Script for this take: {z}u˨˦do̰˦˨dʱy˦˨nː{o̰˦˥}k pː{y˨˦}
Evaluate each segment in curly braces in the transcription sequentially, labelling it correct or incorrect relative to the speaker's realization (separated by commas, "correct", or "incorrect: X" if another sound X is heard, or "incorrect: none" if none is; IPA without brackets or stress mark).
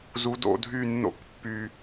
correct, incorrect: o̰˦˨, incorrect: y˨